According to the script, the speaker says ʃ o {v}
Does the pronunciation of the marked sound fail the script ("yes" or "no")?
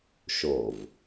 no